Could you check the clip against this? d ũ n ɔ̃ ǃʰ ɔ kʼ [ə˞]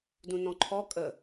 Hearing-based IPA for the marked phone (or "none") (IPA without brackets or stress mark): ə